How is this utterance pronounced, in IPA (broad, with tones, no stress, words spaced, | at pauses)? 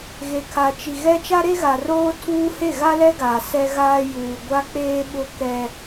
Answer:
ɣe˨kʰa˨t͡ʃi˨ɣɛ˦ t͡ʃa˦ɾe˦ɣa˨roː˦ tʰuː˦he˦˨ ɣa˦lɛ˦ɡaː˨ sɛ˦ɣaː˦ juː˨ɡʷa˦k͡peː˦ ɓʊ˦kɛ˦